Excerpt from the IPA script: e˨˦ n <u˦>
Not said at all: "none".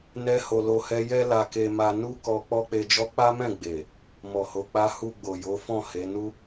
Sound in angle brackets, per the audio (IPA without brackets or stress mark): u˦